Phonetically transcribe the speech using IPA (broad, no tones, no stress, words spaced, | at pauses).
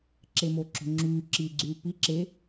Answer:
ǁemoǁo̤ŋ͡ǁyː ǁiɡ͡ǀyː pi ǁe